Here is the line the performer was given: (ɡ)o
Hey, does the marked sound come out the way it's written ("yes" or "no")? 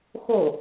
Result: no